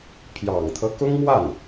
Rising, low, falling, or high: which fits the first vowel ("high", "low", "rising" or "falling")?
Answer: low